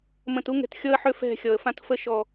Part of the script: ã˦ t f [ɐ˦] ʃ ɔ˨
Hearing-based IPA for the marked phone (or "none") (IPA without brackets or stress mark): ə˦